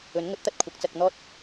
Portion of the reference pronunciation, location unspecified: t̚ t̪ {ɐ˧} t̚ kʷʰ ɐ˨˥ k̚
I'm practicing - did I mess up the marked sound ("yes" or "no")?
yes